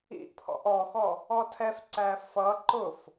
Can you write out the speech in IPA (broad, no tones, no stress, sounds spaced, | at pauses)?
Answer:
ḭ ʔ pʰ ɔ̰ ʔ ɔ x ɔ | ɔ tʰ ɛ f ǀ æ f ʌ ǃ ʊ f